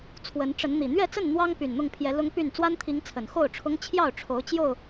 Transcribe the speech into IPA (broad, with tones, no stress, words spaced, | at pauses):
t͡sʰwə˨˦nʈ͡ʂə˨˦n n̪i˨˩ n̪ɥɛ˥˨t͡sə˥˨n n̪wɑ˦ŋ py˨˩nn̪ʊ˥˨ŋpʰjɛ˨˦ lʊ˦ŋpy˥˨n t͡swa˦nt̪ʰi˨˦ŋ t͡sʰə˨˩nxo˥˨ʊ̯ʈ͡ʂʰʊ˦ŋ t͡ɕʰjɑ˥˨ʊ̯ʈ͡ʂʰo˨˦ʊ̯ t͡ɕjo˥˨ʊ̯